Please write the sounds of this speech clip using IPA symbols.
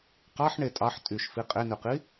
qɑħ ɳetʼɑħ tʼyʃfi qʼenyqi

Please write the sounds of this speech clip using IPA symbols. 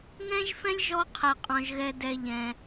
ŋɛ̃˥ʒfɛ̃˥lʲ ʒɔ˦qʰɛ˩qʼɔ̃˩ʒɣɛ˨ dɛ˨ʎɛ̃˩

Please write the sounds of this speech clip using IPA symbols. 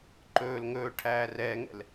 ǃɵːl ŋɵːʈʰæː rɛːŋɛ̰l

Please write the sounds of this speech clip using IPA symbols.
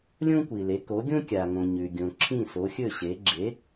lʲõ˥kʷi˩le˩˥ ko˩˥ɡʲõ˥ kʲa˩ŋõ˩ ɲʉ˩ɡʲõ˩ ǁʰĩ˥˩so˩˥xʲɵ˥˩ɕe˩˥ ɡ͡ǁe˩˥

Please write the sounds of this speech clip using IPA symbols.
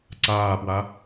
ǀaːpwa

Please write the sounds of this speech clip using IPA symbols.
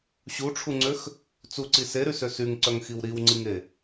ɕuʈ͡ʂʰuŋ͡ǀøx | t͡suǀi seɾysø syŋǀœŋxiw ɾiwŋ͡ǀiŋe

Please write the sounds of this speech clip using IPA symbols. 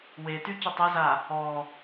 wety cətˤeza | ɔ

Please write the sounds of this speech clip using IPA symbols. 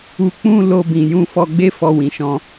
u˧k͡pũ˦ lo˧bĩ˨jũ˧ fɔ˧ɡ͡be˦ fɔ˧wĩ˨ʃɔ̃˧

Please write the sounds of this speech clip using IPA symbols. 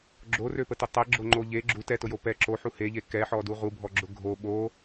ɡ͡ǁorøpətʊ tˤɛɡ͡ǁoŋ͡ǃo ʎe ɡ͡ǁu tɛtʊjo pɛ ǁoħu heʎe kɛħɔdu ʁubʱɔɡ͡ǁʊ ɡʱo ɓo

